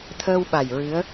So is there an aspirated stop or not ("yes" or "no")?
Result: yes